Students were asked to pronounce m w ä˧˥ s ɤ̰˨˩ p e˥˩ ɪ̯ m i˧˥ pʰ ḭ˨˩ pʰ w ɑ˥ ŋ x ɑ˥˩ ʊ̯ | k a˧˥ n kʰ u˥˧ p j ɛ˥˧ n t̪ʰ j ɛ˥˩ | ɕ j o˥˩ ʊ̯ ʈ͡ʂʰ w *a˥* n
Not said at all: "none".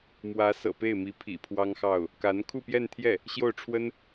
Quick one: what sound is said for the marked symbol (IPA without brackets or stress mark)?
ə˥